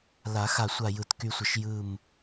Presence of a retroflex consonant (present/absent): absent